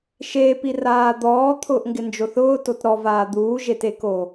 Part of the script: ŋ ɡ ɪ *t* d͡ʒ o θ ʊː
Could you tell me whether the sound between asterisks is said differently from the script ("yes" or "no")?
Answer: yes